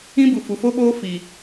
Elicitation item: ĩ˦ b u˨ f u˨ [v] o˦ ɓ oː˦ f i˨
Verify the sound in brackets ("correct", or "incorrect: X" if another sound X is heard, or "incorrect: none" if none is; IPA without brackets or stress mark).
incorrect: f